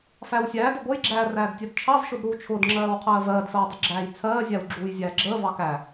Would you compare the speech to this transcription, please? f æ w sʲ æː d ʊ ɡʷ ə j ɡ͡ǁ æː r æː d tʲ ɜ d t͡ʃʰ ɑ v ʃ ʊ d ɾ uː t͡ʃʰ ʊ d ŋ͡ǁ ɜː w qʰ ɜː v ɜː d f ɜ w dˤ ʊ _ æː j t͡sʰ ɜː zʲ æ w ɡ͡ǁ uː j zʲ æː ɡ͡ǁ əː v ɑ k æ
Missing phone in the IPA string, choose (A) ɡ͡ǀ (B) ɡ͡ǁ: B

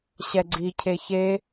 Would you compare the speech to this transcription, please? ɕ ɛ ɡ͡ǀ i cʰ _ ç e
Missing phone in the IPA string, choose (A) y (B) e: B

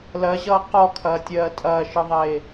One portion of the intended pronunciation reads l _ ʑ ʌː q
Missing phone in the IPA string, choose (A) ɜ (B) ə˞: A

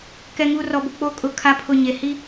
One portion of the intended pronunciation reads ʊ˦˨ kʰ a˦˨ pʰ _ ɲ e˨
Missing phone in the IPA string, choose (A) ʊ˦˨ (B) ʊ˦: A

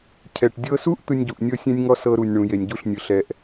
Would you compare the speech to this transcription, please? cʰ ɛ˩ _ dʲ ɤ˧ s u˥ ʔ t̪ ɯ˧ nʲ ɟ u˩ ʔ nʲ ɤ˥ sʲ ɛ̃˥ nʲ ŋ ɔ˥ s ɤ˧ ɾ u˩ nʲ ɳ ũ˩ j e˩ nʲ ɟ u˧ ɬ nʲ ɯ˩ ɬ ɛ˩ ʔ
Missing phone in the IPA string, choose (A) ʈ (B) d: A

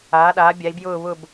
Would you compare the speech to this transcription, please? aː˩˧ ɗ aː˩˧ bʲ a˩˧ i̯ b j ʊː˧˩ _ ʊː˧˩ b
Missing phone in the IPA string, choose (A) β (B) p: A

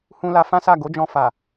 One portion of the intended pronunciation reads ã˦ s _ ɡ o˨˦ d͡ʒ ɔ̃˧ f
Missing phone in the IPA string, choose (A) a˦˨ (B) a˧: A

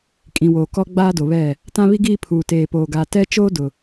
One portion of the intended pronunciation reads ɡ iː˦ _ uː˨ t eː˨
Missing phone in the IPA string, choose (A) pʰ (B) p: A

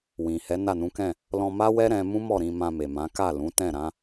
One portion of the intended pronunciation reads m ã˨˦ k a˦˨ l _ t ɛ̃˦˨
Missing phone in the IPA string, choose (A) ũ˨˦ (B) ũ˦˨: A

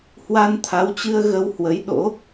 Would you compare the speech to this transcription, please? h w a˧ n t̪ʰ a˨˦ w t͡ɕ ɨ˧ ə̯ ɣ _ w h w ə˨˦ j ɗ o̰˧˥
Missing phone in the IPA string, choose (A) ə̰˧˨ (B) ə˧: B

